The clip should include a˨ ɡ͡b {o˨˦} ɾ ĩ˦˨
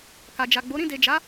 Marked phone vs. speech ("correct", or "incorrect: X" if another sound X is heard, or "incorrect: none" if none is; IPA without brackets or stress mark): correct